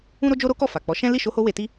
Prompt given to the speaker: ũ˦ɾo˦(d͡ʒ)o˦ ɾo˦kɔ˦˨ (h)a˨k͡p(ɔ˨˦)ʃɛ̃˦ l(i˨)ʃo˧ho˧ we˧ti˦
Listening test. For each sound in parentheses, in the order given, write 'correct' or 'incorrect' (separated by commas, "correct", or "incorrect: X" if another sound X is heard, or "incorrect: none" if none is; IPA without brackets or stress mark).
correct, incorrect: f, correct, incorrect: i˦˨